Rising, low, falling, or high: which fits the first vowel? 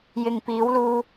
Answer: low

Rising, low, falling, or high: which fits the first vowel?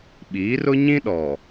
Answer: rising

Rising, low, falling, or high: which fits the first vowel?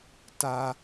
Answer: low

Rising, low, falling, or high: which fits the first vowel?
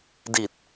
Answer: low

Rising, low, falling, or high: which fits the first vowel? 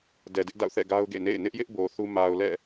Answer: low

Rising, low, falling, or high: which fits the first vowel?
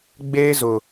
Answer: high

